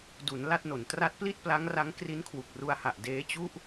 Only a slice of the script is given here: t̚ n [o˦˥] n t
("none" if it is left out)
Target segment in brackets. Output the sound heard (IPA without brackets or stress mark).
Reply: o˩˦